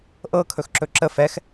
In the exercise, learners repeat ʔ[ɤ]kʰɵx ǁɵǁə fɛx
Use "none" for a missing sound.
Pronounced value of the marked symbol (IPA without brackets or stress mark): ɤ